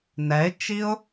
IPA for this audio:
n ɛ ɪ̯ t͡ʃ i ʊ̯

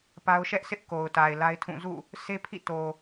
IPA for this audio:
p a˦ ʊ̯ ʃ ɛ˦ ʔ sʰ ɪ˦ ʔ k o˨ ʊ̯ t a˨ ɪ̯ l a˦ ɪ̯ tʰ ũ˦˨ z ṵ˦˨ | s e˦ pʰ ḭ˦˨ t o˨

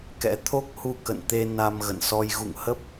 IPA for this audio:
k ɛ̰˧˥ t̪ʰ o˦˥ k̚ h u˧ k ə̰˧˨ n t̪ e˧ n a˧ m ɣ ə̰˧˨ n s ɔ˧ j ɣ ṵ˧˨ ŋ h ə˦˥ p̚

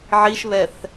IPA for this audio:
ʕ i ʃ β ɛ θ

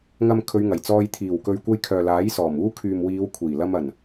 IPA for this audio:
ŋ ɐ˨ m kʰ ɵ˨˧ ɥ ŋ ɐ˨˩ j t͡s ɔː˧ j t̪ʰ iː˨˩ w k ɵ˨ ɥ kʷ ɐ˧ j kʰ œː˨ l aː˨˥ j s ɔː˨˩ m uː˧ kʰ yː˨ m w iː˨˧ w kʷʰ iː˨˩ l ɐ˧ m ɐ˨˩ n

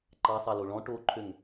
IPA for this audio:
ǃ ɑ sˤ ɑ l o ɭ ɔ̃ ʈ o ǃʰ ø ŋ

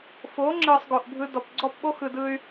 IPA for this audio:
f o˨˦ ŋ͡ǁ ɯ˨ sˤ ɡ o˨ ʔ bʱ ɯ˧ d ɔ˨ p ɡ͡ǀ ɔ˦˨ p ɓ o˦ x ɯ˨ d ɯ˧ y̯

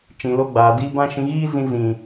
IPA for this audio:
t͡ʃ ĩ˨ l o˧ ɡ͡b aː˨ d iː˧ b ã˦ ʃ ĩ˧ ɣ iː˦ z ĩ˧ z ĩ˨

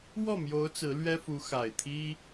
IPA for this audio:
w ɔ˥˩ m j o˧˥ ʊ̯ t͡s ɹ̩˧˥ l ɥ ɛ˥ f u˧˥ x a˨˩ ɪ̯ t̪ʰ i˥

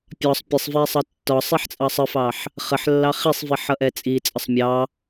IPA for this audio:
pʲ ɒ sˤ pʲ ə sˤ v ɛ sˤ ʌ tː ɒ sˤ i ħ t͡sʼ ɑ sˤ ə f ɑ ħ | χ ə ħ lː ɑ χ i sˤ v i ħ ʌ ʔ ɛ t͡sʼ i t͡sʼ ə sˤ mʲ ɑ

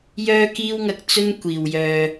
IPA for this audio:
j œː˥ k iː˥ w ŋ ɐ˧ k̚ t͡s ɵ˥ n kʷ iː˨ w j œː˧

